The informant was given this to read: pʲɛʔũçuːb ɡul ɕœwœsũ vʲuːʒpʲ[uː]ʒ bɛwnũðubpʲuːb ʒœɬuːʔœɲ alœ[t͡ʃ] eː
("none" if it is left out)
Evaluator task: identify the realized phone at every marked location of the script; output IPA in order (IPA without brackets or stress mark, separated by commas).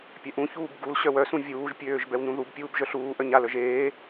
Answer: øː, ʒ